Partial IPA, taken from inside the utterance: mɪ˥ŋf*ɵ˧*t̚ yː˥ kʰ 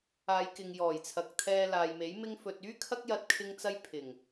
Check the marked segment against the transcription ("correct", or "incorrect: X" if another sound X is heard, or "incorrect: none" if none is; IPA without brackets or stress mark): correct